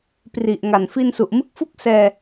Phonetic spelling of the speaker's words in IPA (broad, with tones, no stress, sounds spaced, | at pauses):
p r i˨˩ ʔ ŋ a˨˩ n f i˧ n s u˨˩ ʔ m ɯ˦˥ k̚ f u˥˩ k̚ s ɛː˧